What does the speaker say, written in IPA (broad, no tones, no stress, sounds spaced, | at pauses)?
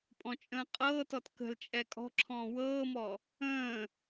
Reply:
pʼ ɔ̃ t͡ʃʼ ə̃ː qʼ ɤː t ɔ t k ə̤ l t͡ʃʼ ɛ kʼ ɔ̤ ǁʰ ɔ̃ː w ɤː m ɔ | ə̃ː